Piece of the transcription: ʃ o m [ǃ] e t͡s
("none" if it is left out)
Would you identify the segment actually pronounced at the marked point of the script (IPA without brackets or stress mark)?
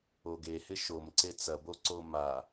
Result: ǀ